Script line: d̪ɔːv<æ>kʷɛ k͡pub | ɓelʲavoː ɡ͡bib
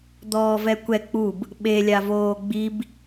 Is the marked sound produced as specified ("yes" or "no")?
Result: no